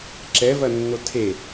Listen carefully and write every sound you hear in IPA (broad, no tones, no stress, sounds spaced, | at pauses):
ǁ ɛ v ɐ nː o tʰ e